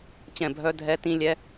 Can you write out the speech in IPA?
t͡ɕ ɛ̃˦˨ bʱ œ˦˥ dʱ ɛ˦˥ t ĩ˦˥ lʲ ɛ˦˥

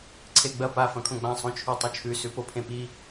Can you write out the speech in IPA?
ǀʰ e ɡ͡b ɐ p a f ɐ̃ kʰ õ ɡ͡b ã sˤ õ t͡ʃʰ ʉ tˤ u t͡ʃʰ ʉ s ʉ p o pʰ ẽ p i

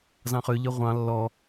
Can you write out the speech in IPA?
z ɑ̃ χ ø ʎ œ ʁʷ ɑ̃ lː ɔ

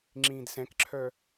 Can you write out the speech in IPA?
ŋ͡ǁ ĩː d s ɛ̃ k ǁʰ œ

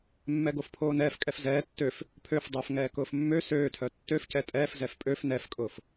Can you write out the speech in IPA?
mː ɛ ɡ o f pʰ oː n ɛː f kʼ ɛ f z ɛː tː ø f | pʰ ø f dˤ ʊː f ŋ ɛː k ʊː f mː ø s øː tʰ œ tː ø f c ɛ tʼ ɛː f z ɛ f pʼ ø f n ɛ f kʼ ʊː f

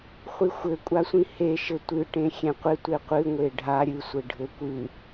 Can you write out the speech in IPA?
χʷ i xʷ ɘ kʷʼ a sʷ ĩ h e ʃ ɘ tʷ ɨ ʈ ẽ xʲ ẽ qʷ ɪ tʷ e qʷ ɨ ŋʷ e ɖʱ a ɾʲ ɨ sʷ ɘ ɖʱ ɘ kʷ ɨ

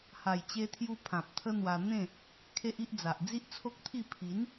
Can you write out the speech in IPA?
h a˨˩ j t͡ɕ e˧ t̪ʰ j u˧ pʰ ã˨ p̚ t̪ʰ ə˦ n̪ w a˧ n̪ ẽ˥˧ | kʰ e˦ ʔ i˦ ʔ d͡z a˨ ʔ d͡z i˦ ʔ t͡sʰ o˦ k̚ t̪ʰ i˥˧ pʰ i˨˦ n

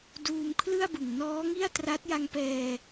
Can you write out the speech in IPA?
d uː˧ m kʰ l ɯ˥˩ a̯ b ɯ˨˩ ŋ n ɔː˦˥ ŋ i˥˩ a̯ t r a˦˥ t̚ j a˧ ŋ p ɛː˧

